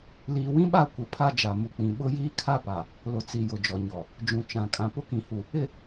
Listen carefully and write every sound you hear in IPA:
liː˨wĩ˦ɓa˦˨ kʷɪ˨ pʰa˦ d͡ʒa˨mu˨k͡pĩ˨ ɓʊ˦jiː˦ kʰa˦pa˨ | lʊ˨t͡si˨ jʊ˨d͡ʒɔ˨ɲɔ˨ | d͡ʒũ˨t͡ʃã˨ kʼã˨ pʊ˦kĩ˨hu˨ | ɪ˨

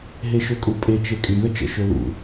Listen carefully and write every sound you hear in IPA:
ɦeʃøkʼupʼe t͡ʃekʼy ðət͡ʃə̰ ʃølṵ

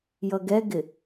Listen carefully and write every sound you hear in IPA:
jʌɡɛɡɪ

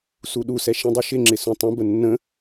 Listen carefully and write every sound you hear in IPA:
suɗusɛ ʃĩdˤiʃɪŋ͡ǁɪ sũtˤə̃bə nːə̃

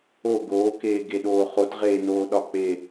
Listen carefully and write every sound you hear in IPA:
o ɡoːkeːɡeɗoː χotʁeː noːɗɒk͡pe

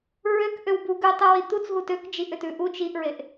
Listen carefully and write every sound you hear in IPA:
ɹøk ʔøwbu ɡʉtˤʉ wit̪ut͡sɦu tøk d͡ʒiʔʏtʉ ʔut͡ʃ iʔɹeʔ

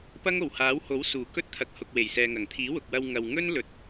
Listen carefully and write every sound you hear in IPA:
pɐ˥ŋo˨˩whaː˨˥who˨˥w suː˨˩kɵ˥t̚t̪ʰɐ˨k̚hʊ˨k̚ we˨˩jsɛː˨ŋɐ˨˩ŋ t̪ʰiː˨˥wʊ˨k̚wɐ˧w ŋɐ˨wŋɵ˥nlɵ˨t̚

